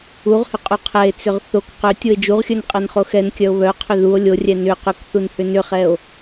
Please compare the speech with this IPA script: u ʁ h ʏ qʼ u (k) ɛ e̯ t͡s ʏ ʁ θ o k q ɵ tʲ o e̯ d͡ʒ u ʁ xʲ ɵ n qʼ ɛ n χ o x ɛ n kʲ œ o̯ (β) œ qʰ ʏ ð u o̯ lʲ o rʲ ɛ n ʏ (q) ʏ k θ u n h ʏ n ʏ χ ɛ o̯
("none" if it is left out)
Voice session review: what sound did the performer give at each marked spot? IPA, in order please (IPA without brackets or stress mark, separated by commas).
qʰ, β, q